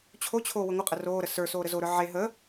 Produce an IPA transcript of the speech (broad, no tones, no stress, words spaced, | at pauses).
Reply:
t͡ɕʰot͡ɕʰoː wəŋʷəqʼə roːɾə sə˞soː ɾəzoɾə˞ ʕe ɦə